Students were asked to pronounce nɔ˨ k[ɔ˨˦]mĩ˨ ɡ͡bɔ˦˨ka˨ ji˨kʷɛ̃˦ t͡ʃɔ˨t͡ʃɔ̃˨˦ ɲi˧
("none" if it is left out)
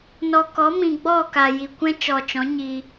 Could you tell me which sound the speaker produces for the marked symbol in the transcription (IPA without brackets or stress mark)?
ɔ˨˦